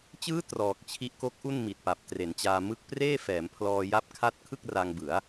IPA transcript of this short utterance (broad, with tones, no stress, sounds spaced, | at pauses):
t͡ɕ ɯː˦˥ t r ɔː˨˩ k̚ t͡ɕʰ i˦˥ ʔ k o˦˥ k̚ ʔ u˥˩ n m i˨˩ t̚ p a˨˩ p̚ t r e˩˦ n t͡ɕ aː˧ m ɯ˦˥ k̚ p r eː˥˩ f ɛː˩˦ m pʰ l ɔː˧ j a˥˩ p̚ kʰ a˦˥ t̚ kʰ ɯ˥˩ k̚ r a˧ ŋ b ɯ˩˦ a̯